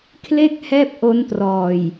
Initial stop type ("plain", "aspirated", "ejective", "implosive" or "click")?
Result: aspirated